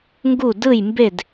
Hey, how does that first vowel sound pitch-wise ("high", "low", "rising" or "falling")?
falling